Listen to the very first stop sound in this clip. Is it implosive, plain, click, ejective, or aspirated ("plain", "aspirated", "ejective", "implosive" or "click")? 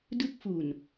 plain